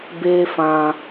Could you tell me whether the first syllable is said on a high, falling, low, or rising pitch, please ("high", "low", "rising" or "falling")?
high